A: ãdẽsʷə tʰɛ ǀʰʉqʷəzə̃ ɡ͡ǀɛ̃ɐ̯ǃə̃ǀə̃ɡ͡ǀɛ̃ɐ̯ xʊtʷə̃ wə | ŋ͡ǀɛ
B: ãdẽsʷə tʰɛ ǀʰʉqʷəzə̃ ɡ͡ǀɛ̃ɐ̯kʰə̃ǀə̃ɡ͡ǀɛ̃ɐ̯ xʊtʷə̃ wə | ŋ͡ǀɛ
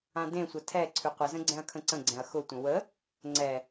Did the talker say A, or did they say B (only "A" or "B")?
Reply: B